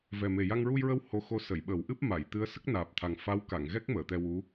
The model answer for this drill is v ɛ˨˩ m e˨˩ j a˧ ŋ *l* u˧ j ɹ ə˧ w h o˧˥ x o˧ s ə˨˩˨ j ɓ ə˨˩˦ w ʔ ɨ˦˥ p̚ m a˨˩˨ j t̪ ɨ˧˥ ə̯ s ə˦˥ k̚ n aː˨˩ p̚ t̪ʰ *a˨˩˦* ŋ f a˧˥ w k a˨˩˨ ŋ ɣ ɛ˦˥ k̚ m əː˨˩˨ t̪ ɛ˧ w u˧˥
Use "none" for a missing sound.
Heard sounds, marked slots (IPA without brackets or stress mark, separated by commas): ɹ, a˨˩